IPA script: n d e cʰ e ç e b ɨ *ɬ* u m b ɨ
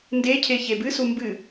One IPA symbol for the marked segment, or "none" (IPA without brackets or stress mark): s